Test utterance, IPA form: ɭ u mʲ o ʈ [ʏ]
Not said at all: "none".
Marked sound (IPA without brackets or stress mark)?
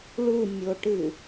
ɨ